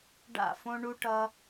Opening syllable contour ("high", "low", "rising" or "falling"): falling